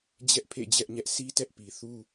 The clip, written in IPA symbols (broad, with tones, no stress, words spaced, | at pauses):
d͡ʑɛ˦ʔpʰḛ˦˨ d͡ʑɛ˦ʔɲɛ˦ʔ sʰi˦tɛ˦ʔpi˨ θu˦